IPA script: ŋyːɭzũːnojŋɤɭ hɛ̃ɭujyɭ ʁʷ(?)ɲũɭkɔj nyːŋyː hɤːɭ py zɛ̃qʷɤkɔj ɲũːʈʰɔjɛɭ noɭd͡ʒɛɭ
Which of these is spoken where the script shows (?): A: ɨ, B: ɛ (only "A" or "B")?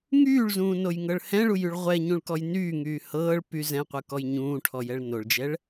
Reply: B